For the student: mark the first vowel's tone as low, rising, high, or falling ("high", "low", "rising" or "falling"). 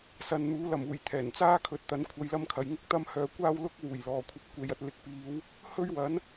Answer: low